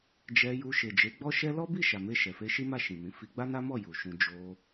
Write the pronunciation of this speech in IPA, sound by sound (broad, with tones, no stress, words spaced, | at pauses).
d͡ʒɛ˧ju˧ ʃe˨d͡ʒe˨˦ ɡ͡bɔ˦ʃɛ˦ lɔ˦bi˦˨ ʃa˨me˧ ʃɛ˨fe˧ʃi˦ma˦˨ ʃĩ˨mĩ˨˦ fi˧ ɡ͡ba˦na˦mɔ˦˨ ju˨ʃũ˧ d͡ʒo˧